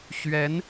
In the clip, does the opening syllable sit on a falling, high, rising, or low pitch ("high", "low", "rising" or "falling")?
rising